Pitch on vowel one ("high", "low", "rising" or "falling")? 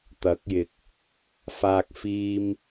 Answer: rising